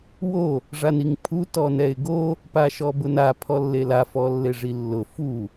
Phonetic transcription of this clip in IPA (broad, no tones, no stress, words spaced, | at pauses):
wo | ʐaniŋpʰu tɔnɛɪ̯ɡo | paʃɔbʊna pʰɔlːela fɔlːeʐilːʊ fu